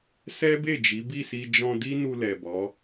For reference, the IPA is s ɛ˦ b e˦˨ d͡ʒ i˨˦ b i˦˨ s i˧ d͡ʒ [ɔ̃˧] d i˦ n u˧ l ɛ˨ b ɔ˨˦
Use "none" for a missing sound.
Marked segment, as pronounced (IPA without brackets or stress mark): ɔ̃˧